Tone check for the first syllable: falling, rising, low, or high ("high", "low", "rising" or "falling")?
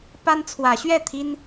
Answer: high